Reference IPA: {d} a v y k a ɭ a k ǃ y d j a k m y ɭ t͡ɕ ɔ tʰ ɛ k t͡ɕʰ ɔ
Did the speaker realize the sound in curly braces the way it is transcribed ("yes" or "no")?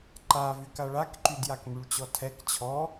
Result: no